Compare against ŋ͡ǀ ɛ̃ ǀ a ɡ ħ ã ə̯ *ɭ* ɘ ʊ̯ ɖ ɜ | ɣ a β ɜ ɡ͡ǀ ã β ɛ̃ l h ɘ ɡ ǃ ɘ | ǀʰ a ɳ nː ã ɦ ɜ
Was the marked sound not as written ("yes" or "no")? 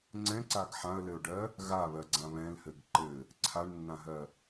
yes